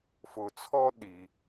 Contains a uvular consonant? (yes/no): no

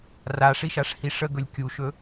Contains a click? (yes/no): no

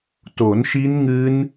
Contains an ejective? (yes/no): no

